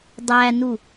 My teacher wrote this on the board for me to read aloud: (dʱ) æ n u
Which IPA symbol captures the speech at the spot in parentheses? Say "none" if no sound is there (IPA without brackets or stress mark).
dˤ